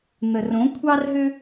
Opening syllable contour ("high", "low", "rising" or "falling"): low